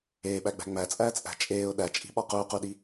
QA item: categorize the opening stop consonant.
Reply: implosive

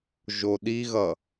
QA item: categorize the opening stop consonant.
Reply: implosive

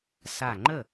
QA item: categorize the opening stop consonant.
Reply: click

